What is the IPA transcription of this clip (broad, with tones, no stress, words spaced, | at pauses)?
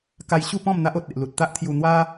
ka˧jɕu˥˧pɔ̃˥˧m n̪a˦ʔo˨t̚ e˨ʔlu˨t̚t̪a˦ʔt̪ʰju˧ n̪wa˦